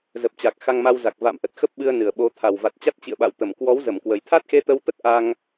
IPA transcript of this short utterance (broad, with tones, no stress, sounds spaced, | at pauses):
z ə˨˩ p̚ t͡ɕ a˨˩ k̚ x a˧ ŋ m a˧ w z a˨˩ k̚ v a̰˧˨ m ʔ ə˨˩ t̚ x ə˦˥ p̚ ɓ ɨ˧ ə̯ n ɨ˨˩ ə̯ ɓ o˨˦ t̪ʰ a˨˩ w v a˨˩ t̚ t͡ɕ a˦˥ t̚ t͡ɕ ḭ˧˨ ə̯ ɓ a̰˧˨ w t̪ ə˧˩ m k w ɔ˨˦ w z ə˧˩ m k w ə˨˩ j t̪ʰ a˦˥ t̚ x e˧ t̪ ə˧ w t̪ ə˦˥ t̚ ʔ a˧ ŋ